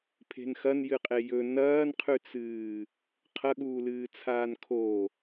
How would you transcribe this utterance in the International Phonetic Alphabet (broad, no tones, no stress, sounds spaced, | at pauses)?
pʰ e̤ n x ɐ n j ɨ qʼ e j ɵ n ɐː n qʰ ʉ t͡s ɨː | qʰ ɐ ɠ uː l ɨː t͡sʰ aː n kʰ o